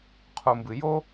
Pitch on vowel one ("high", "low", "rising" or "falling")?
low